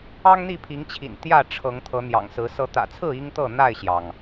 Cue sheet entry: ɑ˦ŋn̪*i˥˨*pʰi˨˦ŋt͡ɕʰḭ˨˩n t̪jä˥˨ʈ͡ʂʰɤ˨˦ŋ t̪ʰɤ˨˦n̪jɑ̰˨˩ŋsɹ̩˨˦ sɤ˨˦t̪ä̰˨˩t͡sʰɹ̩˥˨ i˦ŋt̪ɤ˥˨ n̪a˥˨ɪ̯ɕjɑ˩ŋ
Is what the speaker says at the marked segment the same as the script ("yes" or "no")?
yes